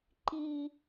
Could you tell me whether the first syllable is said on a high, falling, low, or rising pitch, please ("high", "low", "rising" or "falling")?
low